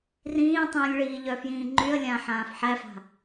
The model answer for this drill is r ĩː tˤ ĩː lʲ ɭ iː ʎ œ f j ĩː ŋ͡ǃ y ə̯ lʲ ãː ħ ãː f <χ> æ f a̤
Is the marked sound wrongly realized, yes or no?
yes